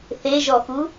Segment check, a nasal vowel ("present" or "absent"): absent